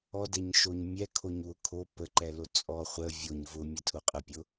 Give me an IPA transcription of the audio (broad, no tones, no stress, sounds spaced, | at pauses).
ɔ d ɛ ɲ ʃ o ɲ mʲ ɛ kʰ o ɲ w ʊ kʰ o p ə ǃ ɛ l o t͡sʼ ɔ χʷ ə vʲ o ɲ v ʊ mʲ ə tʰ ʊ qʼ ə pʲ ʊ